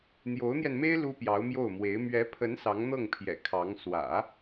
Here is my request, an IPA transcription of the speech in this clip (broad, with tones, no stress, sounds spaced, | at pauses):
n̪ j o˧˥ ʊ̯ n̪ j ɛ˧ n m e˥ ɪ̯ l u˥ p j ɑ˧˥ ʊ̯ m j o˥˩ ʊ̯ m w e˧˥ ɪ̯ m ɥ ɛ˧˥ pʰ ə˧˥ n s ɑ˧˥ ŋ n̪ ɤ˥˩ ŋ pʰ j ɛ̰˨˩ kʰ ɑ˧˥ ŋ s w ä̰˨˩˦